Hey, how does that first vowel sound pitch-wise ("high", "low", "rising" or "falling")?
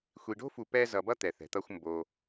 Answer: low